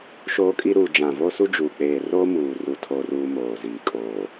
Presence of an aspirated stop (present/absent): present